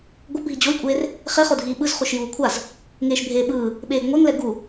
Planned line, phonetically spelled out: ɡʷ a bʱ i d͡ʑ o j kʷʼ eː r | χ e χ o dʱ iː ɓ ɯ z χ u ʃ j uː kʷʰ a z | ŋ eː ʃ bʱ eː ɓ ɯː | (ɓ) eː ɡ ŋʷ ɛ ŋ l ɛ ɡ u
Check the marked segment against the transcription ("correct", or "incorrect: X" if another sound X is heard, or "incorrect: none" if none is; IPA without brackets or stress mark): correct